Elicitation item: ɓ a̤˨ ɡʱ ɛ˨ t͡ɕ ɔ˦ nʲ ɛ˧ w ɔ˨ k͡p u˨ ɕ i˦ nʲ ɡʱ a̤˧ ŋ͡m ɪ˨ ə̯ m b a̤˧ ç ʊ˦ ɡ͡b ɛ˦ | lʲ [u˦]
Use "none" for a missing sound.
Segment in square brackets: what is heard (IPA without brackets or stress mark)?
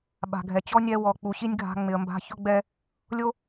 o˦